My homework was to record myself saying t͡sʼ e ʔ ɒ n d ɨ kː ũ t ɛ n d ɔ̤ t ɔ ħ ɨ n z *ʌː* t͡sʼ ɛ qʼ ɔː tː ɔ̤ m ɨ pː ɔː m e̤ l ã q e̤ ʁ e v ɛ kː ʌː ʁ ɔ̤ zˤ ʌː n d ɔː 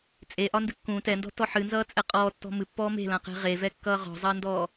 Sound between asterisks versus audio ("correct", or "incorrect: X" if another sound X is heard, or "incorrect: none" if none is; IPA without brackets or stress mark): correct